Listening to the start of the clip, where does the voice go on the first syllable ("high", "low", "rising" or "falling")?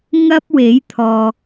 high